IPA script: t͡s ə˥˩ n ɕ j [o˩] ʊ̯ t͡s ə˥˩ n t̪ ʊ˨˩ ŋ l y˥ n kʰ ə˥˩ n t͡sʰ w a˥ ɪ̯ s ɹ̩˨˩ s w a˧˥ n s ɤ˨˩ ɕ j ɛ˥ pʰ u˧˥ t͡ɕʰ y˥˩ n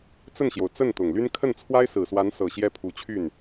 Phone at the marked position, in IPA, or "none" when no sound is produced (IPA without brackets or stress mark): o˩